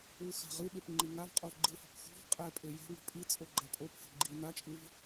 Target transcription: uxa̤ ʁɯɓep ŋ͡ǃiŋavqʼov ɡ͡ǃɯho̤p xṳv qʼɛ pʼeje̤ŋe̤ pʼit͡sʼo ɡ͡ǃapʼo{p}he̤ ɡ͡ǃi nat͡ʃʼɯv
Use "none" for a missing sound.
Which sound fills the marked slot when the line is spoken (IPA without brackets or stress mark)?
p